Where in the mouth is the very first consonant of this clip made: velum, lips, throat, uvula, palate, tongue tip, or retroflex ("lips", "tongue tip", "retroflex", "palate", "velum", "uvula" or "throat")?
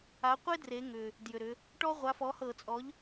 uvula